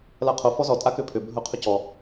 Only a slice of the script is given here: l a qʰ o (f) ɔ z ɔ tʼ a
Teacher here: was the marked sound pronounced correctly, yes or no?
yes